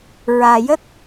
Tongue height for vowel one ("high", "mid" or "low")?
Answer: low